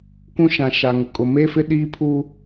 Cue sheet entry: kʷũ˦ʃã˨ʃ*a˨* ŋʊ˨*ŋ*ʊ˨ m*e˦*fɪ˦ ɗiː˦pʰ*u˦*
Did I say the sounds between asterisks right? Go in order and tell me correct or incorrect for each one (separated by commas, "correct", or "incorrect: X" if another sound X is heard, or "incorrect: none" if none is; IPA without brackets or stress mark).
correct, incorrect: kʼ, correct, correct